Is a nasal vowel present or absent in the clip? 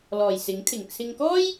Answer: absent